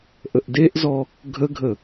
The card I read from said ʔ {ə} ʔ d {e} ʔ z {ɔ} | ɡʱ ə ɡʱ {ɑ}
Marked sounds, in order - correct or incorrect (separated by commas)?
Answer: correct, correct, correct, incorrect